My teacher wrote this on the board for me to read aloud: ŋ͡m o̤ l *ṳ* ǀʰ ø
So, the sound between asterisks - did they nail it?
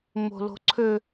no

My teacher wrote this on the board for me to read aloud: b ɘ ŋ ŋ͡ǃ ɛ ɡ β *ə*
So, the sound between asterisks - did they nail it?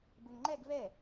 no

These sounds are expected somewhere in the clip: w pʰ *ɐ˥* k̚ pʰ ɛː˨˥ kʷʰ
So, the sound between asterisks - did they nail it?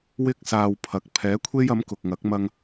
no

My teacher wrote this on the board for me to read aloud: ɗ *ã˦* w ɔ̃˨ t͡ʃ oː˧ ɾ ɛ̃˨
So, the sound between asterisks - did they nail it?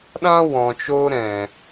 yes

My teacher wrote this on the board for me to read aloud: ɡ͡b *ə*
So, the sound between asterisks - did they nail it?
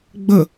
yes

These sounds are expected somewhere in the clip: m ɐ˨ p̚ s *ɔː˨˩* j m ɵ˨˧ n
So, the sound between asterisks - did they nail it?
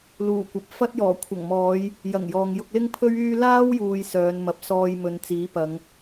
no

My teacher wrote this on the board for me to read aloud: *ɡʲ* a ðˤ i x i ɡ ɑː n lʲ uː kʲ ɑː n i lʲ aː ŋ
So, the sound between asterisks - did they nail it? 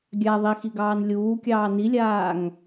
yes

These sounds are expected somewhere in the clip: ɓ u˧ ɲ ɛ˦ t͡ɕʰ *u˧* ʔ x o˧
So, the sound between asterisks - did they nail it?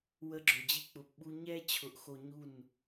no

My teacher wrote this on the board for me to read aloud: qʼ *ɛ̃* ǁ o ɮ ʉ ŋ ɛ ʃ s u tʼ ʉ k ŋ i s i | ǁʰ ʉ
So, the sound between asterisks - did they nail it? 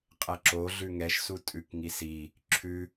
no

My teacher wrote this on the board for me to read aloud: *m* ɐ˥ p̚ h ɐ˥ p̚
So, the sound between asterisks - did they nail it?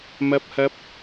yes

